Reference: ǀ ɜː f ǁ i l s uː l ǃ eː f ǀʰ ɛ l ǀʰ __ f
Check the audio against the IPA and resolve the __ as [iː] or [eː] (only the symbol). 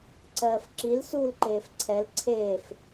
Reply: eː